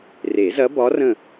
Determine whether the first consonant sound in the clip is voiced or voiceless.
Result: voiced